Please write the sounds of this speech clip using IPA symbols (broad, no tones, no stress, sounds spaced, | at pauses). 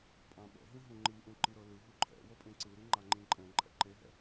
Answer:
pʼ ã ɓ ɛ̰ ɦ ĩ ɦ ũ ŋ͡ǃ i ʔ ũ ǃ i ɾ ɤ l ɯ ɦ u ǃʰ ɛ̰ w ɤ pʼ ẽ ǀ ɯ ɾ i ŋ͡ǃ a ŋ͡ǃ ĩ ǃʼ ɛ̃ ǃʼ ɛ̰ ǃ e ɦ ɛ̰